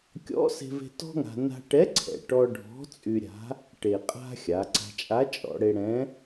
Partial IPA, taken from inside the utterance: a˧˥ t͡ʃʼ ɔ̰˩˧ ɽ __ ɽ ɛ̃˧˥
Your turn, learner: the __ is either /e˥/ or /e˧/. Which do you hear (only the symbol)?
e˧